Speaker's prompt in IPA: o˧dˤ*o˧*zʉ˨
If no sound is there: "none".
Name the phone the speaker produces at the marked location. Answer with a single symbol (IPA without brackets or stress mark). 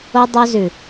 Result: o˧